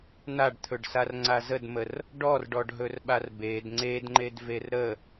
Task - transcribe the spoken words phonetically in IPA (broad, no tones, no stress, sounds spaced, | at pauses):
n a ɖ t̪ʰ ɵ ɖ s a r ŋ͡ǀ a z ə d m ə r | ɖ ɔ r ɖ ɔ ɖ ɦ ɵ r ɓ a r b e d ŋ͡ǀ e d ŋ͡ǃ e d v e r ɾ ə